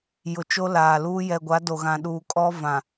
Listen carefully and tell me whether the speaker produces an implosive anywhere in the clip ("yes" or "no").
yes